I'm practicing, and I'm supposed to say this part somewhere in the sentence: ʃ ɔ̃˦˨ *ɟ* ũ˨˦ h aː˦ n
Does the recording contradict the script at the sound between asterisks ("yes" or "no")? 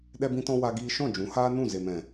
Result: yes